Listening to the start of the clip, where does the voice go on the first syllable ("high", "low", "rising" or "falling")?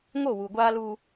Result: falling